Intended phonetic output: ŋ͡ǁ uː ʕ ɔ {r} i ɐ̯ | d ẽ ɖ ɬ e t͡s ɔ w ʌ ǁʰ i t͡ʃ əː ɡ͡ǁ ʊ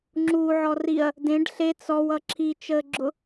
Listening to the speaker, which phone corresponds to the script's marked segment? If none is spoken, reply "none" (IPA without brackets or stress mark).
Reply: r